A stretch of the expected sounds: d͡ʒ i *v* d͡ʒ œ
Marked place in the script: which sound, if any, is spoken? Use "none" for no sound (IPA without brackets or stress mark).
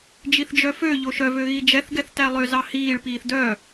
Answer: θ